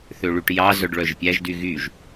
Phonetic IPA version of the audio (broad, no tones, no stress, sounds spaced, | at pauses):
θ ø ɭ y ʈ j ɑ z œ ɖ ɭ œ ʒ pʲ æ ʒ d y ɣ y ʒ